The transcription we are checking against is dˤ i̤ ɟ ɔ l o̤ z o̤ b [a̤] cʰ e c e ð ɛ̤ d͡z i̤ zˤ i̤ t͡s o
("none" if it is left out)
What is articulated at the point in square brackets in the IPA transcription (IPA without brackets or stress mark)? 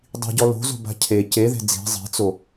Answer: a̤